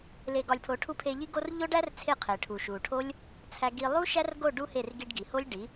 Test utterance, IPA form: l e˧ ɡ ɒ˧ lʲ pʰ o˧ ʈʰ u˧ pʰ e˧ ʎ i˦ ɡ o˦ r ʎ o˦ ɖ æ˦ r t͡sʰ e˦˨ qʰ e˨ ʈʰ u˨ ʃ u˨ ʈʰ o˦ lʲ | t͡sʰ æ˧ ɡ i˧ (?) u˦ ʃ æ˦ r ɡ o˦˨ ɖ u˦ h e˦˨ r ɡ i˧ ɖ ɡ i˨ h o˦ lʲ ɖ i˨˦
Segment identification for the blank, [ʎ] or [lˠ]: lˠ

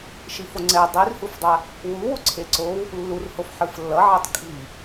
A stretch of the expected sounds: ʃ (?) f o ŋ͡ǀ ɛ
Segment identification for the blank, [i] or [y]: i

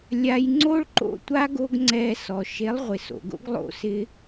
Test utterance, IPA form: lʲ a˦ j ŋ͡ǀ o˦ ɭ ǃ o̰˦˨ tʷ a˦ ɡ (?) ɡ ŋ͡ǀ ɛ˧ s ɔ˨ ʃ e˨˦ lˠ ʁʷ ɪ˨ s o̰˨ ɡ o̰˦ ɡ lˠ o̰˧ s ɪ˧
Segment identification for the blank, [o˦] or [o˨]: o˦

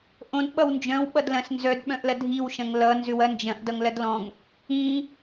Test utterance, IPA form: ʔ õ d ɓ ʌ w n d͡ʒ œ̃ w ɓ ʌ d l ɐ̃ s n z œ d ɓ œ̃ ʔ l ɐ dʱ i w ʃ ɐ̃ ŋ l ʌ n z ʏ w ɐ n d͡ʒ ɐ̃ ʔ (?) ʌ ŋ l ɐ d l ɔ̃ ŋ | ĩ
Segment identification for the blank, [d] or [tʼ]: d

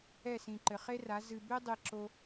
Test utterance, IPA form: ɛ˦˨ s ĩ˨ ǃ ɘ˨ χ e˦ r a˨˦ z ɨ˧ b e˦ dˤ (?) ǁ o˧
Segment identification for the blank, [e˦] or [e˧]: e˧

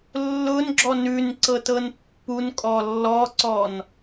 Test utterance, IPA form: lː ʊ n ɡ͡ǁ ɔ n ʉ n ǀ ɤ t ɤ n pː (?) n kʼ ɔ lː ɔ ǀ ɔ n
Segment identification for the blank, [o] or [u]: u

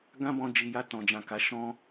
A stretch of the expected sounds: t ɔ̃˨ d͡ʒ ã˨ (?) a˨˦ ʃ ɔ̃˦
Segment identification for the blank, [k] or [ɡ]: k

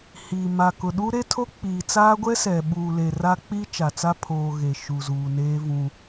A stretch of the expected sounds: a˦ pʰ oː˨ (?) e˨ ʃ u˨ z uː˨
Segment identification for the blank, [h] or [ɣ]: ɣ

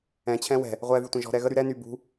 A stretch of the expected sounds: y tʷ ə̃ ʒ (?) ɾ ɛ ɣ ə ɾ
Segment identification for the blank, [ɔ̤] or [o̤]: ɔ̤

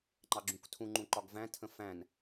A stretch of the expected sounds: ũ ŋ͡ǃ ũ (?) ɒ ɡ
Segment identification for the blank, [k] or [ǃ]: ǃ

